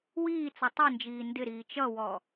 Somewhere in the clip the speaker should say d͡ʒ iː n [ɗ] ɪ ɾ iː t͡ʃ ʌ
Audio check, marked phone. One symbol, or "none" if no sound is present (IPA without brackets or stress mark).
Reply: d